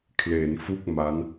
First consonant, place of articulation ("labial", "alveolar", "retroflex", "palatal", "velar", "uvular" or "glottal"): velar